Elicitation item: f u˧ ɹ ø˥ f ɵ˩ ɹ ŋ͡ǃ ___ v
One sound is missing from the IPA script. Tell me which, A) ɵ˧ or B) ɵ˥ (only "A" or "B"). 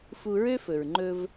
A